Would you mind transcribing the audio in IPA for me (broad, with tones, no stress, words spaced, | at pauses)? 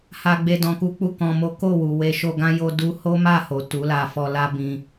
ha˦ɡ͡be˦dɔ̃˧ku˦ k͡pu˦˨kɔ̃˧mo˦ ko˦˨wu˨ we˧ʃo˧ɡã˦ jo˦du˦ ho˦ma˦˨ho˨ tu˨˦la˧fɔ˧ la˦ bĩ˦